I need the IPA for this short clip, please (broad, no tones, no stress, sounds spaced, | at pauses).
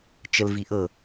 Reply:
t͡ʃ ə l v i ʔ ɤ